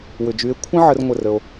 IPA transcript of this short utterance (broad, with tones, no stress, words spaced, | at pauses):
wʏ˨d͡ʒy˨˦e̯ kʷʰə̃˦ ʕə˧r ŋʷə˦˨rə˧o̯